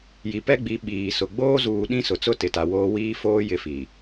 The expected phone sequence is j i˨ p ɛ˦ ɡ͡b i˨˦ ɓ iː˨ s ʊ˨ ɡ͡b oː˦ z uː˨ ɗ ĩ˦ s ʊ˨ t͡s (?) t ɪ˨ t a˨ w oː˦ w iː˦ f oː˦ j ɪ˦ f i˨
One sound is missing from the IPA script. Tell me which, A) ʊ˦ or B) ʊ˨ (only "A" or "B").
A